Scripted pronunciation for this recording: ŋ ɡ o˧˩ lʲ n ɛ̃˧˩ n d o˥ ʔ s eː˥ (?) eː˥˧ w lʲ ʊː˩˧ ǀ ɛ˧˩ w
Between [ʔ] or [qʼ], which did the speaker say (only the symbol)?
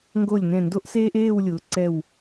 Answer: ʔ